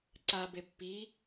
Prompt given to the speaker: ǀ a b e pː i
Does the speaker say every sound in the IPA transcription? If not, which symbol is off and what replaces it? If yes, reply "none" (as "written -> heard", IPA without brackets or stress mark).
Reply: none